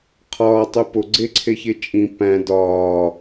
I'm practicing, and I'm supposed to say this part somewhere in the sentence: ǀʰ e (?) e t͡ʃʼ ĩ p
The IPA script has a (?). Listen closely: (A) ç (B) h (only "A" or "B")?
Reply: A